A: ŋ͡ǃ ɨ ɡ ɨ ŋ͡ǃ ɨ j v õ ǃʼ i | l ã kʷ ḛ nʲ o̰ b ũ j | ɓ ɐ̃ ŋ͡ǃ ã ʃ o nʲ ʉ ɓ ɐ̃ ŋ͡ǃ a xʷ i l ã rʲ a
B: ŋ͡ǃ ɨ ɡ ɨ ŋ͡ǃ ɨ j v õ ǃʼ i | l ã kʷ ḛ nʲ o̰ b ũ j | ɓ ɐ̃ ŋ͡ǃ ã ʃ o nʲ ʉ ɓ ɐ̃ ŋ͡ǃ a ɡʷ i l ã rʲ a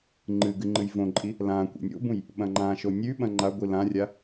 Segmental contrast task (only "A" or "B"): B